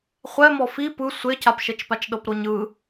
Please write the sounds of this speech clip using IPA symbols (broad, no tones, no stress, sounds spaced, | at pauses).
χʷ ɛ m ɔ f i p ɯ sʷ e cʰ a p ʃ ɛ t͡ʃ p a t͡ʃ ɗ ɤ p ɾ o ɲ ɯ